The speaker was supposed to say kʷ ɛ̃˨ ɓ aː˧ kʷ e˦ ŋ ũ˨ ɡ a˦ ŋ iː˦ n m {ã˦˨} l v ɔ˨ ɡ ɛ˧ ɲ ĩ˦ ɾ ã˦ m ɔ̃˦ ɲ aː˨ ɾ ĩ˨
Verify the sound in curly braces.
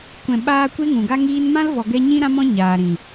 incorrect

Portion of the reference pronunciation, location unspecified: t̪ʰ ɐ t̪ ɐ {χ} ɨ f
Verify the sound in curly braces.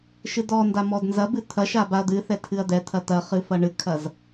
correct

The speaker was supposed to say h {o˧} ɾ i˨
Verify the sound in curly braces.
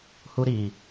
incorrect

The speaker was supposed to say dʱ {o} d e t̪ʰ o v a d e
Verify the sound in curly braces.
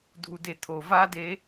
incorrect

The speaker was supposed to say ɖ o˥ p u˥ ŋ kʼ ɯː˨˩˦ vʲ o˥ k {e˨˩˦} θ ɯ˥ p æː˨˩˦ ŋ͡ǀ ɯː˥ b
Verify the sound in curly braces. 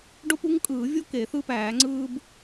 correct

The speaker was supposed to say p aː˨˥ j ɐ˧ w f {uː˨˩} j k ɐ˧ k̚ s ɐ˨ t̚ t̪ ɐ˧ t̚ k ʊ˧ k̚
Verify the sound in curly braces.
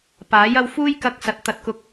incorrect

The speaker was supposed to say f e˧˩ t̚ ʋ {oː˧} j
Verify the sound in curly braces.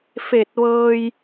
incorrect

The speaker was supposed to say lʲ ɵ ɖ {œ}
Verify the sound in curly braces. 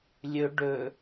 incorrect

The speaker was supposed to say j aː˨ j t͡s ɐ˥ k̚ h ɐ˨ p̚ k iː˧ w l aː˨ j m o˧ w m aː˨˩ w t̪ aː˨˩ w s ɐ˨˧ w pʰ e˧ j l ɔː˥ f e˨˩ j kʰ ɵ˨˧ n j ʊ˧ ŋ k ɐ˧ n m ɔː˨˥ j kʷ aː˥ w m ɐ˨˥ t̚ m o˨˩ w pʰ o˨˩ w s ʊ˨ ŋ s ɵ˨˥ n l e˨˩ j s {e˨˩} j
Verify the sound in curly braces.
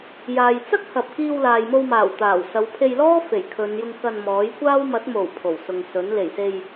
incorrect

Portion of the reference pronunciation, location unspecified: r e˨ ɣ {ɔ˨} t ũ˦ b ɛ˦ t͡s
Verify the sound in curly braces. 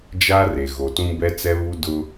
incorrect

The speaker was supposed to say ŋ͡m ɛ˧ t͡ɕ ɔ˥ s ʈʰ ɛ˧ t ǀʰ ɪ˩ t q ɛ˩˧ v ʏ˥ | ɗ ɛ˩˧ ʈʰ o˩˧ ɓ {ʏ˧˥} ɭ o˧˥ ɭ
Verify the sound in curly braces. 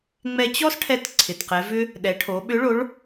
correct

